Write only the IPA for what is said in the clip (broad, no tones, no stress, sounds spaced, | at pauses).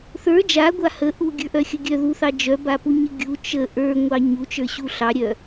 θ ə˞ d͡ʒ a ɡʷ a h ə ʔ u ɡʲ ə˞ ʔ œ xʲ ə ɡʲ œ ð u θ ɑ d͡ʒ œ b a p u ɲ ə ɡʲ u t͡ʃ ə ʔ ə˞ ŋʷ ɑ ɲ u t͡ʃ ə˞ ɕ u ɬ ɑ ɾʲ œ